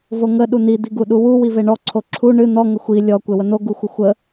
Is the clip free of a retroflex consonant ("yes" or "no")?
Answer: no